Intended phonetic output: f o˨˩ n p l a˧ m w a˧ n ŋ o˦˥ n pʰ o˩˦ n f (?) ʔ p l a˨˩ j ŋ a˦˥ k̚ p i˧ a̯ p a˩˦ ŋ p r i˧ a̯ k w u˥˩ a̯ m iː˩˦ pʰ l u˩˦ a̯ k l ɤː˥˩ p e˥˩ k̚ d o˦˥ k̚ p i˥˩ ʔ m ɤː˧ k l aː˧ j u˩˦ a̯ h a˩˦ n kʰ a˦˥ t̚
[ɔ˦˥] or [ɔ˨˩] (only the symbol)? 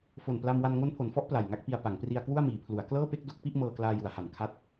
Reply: ɔ˦˥